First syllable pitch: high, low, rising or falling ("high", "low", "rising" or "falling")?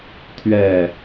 falling